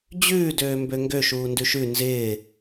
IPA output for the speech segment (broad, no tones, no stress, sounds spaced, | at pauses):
d͡ʑ ʉː d øː m b ø ŋ ɡ ø ʃ uː n d ʉ ʃ ʉ n z ɪː